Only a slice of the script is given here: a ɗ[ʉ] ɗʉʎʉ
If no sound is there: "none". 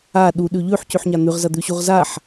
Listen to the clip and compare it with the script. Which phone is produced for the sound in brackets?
u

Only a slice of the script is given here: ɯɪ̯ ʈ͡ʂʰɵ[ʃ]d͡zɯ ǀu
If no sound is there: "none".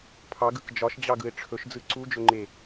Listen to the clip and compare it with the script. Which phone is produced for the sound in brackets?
ʃ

